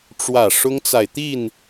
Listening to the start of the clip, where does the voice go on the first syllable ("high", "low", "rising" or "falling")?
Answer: falling